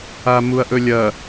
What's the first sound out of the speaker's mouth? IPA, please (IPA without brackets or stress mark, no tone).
a